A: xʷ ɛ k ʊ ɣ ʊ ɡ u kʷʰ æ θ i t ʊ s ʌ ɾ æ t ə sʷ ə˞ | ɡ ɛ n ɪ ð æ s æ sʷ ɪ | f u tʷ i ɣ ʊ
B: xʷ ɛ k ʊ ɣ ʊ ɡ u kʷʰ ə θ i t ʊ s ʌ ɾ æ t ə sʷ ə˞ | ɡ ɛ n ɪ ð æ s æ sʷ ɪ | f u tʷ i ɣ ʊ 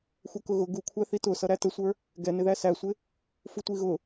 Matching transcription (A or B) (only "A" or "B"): A